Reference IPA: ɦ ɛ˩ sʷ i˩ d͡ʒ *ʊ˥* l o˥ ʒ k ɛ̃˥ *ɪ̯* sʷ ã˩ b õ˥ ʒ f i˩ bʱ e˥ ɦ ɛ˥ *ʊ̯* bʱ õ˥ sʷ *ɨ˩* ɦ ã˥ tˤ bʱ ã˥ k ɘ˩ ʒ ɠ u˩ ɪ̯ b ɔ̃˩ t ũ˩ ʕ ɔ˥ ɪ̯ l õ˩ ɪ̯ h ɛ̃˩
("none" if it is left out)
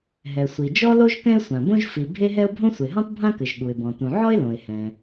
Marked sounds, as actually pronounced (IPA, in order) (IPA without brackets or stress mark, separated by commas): ɔ˥, ɪ̯, ʊ̯, e˩